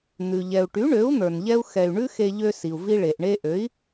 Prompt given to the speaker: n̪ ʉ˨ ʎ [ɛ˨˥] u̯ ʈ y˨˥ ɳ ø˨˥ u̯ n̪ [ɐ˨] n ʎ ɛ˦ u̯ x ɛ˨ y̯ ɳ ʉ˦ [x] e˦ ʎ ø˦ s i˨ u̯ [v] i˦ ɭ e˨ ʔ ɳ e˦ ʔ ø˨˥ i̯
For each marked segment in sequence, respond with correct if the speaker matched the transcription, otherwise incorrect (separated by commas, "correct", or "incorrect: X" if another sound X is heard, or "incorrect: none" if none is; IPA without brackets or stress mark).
incorrect: ɛ˨, incorrect: ə˞˨, correct, correct